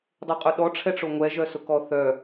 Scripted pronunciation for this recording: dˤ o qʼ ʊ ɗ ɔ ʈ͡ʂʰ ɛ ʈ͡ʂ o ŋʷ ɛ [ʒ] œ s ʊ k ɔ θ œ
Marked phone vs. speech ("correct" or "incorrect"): correct